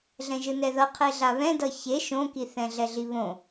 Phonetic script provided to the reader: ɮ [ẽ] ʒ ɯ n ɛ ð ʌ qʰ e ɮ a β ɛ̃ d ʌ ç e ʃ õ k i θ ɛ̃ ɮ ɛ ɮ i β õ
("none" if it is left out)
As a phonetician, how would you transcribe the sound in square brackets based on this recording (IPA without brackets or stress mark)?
ɛ̃